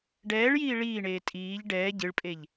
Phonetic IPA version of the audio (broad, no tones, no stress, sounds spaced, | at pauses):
ɖ ɛː ɭ j iː ɭ iː ɳ eː tʼ iː ʎ ɖ ɛː ɟ ɨ ɭ pʼ e ʎ